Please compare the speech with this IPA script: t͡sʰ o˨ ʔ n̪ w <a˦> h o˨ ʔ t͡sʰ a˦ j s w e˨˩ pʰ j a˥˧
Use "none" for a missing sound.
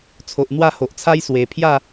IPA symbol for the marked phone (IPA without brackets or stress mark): a˥˧